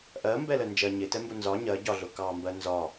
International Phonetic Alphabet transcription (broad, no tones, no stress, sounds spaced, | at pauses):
ʔ ɜ m b ɛ l ə n d͡ʒ ɜ ɲ ɪ t ɛ m b ʊ n z ɒ ɲ ɜ ɟ ɒ ɮ ʊ k ɑ m b ɜ n z ɒ